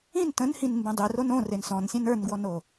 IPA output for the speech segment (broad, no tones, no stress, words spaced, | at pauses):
ĩn tə̃nhĩn mbẽdˤiron õ rensɔ̃nsʲẽn ə˞nɡwɔno